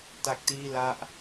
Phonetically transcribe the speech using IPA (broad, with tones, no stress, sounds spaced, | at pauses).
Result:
t a˦˥ k̚ t iː˥˩ l a˥˩ ʔ